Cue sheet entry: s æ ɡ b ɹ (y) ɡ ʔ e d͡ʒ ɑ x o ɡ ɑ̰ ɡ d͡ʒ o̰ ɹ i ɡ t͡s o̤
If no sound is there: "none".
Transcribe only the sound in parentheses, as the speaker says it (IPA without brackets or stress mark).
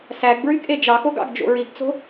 y